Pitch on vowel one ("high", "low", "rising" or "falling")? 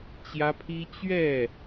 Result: high